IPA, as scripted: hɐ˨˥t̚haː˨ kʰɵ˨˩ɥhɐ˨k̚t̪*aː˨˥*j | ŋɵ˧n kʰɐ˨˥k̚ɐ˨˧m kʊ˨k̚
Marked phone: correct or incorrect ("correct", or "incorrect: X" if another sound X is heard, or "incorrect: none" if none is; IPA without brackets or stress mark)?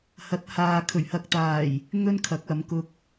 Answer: incorrect: aː˨˩